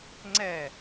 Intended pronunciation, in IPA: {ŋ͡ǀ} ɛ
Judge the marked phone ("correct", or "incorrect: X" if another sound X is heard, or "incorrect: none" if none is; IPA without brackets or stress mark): correct